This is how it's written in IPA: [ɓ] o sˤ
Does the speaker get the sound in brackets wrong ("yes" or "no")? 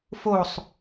yes